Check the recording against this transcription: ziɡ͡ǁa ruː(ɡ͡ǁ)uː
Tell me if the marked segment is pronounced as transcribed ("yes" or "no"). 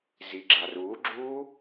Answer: yes